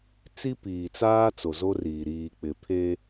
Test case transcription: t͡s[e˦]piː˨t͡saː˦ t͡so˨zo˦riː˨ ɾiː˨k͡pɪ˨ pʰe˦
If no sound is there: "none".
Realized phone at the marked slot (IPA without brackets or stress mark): i˦